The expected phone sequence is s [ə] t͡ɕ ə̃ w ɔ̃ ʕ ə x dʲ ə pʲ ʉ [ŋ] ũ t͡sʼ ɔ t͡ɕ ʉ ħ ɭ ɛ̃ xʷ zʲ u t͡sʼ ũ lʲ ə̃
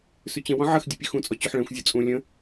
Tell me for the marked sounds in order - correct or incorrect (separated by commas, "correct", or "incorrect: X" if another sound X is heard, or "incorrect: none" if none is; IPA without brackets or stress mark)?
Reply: incorrect: ʉ, incorrect: x